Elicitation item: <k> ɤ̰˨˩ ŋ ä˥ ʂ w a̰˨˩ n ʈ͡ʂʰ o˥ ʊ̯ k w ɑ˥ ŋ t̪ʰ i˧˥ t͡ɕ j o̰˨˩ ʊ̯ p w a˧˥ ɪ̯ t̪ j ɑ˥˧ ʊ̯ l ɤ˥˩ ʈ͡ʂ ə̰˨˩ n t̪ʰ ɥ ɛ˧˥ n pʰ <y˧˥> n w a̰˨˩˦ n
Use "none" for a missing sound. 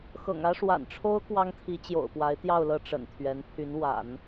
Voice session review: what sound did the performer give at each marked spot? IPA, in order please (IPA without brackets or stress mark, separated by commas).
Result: x, y˧˥